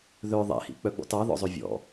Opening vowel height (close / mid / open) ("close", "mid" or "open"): mid